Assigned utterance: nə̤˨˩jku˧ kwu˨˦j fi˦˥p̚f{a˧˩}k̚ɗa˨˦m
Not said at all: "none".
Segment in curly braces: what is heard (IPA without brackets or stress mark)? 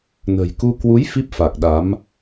a˨˩